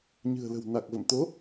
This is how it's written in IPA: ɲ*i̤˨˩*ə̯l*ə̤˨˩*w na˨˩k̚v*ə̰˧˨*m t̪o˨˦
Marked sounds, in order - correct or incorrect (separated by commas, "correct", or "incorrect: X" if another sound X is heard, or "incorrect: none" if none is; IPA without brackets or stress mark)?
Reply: incorrect: ɨ̤˨˩, correct, correct